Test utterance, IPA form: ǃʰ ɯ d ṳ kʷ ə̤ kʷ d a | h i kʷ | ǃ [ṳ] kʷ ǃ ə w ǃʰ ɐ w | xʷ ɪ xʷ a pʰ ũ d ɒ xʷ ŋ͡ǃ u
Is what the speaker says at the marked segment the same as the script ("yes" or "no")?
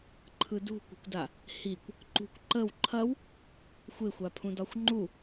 yes